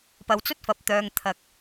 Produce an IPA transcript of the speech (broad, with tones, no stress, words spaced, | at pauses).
pɐ˨wt͡sɵ˥t̚fɐ˨p̚t̪œː˨ŋ t̪ʰɐ˨k̚